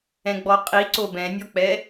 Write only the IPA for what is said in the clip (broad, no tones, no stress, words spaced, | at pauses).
ɛ̃ɡ͡bɔqʼi ǀobɛ̃nʲɔk͡pɛ